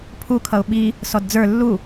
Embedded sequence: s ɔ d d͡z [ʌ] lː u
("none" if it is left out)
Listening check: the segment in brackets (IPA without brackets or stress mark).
ə˞